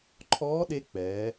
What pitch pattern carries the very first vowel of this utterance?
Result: rising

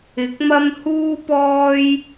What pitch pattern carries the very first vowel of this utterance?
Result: rising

